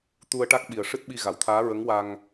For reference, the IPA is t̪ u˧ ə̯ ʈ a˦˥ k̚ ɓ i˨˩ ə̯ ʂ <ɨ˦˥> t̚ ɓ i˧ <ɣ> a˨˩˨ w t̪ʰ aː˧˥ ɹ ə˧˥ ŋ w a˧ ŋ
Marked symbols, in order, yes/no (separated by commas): yes, yes